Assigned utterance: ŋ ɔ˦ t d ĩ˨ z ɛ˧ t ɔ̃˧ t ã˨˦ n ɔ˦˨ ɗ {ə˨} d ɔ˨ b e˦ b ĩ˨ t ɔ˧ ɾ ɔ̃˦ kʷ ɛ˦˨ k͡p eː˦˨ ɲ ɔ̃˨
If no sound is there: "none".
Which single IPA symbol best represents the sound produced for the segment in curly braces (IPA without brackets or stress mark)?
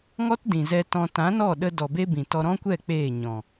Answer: ə˧